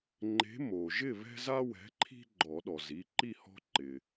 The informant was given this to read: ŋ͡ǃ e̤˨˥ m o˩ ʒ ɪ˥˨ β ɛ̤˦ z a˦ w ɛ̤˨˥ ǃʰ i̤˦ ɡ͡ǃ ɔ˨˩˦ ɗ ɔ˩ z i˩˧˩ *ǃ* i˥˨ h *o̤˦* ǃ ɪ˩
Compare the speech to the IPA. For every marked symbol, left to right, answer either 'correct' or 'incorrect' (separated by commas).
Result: correct, incorrect